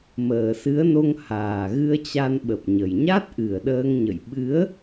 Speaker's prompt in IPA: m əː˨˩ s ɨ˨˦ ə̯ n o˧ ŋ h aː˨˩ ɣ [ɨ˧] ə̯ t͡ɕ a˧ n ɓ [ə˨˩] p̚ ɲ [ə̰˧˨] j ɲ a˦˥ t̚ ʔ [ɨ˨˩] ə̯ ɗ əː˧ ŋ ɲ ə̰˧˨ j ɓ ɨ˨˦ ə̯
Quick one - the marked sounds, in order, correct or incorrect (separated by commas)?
correct, correct, incorrect, correct